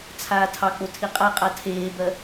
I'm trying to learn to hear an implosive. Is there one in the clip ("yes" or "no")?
no